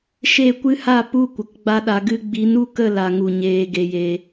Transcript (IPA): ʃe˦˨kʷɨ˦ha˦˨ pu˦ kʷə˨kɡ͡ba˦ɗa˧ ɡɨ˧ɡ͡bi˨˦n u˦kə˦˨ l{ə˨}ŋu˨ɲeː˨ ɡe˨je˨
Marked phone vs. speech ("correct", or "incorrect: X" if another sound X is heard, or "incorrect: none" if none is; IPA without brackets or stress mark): incorrect: a˨